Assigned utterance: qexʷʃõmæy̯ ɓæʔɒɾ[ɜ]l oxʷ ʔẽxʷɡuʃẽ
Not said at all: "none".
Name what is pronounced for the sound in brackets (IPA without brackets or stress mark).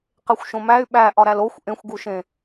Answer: æ